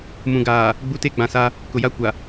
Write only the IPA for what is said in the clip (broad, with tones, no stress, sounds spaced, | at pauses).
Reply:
m ũ˨ ɡ aː˨ | ɡ͡b u˦ t e˦ ɡ͡b ã˨ s a˦ | k ʊ˨ j a˦ kʷ a˨